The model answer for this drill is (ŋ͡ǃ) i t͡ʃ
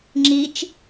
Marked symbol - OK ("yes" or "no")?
no